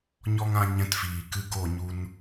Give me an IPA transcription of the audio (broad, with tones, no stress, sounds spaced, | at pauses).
ɲ ɔ˦ ŋ ã˦ ɲ ɛ̃˧ t f iː˨ k ɨ˧ ɡ o˦˨ ɲ u˧ n